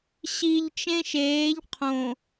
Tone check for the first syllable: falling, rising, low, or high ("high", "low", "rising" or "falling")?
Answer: low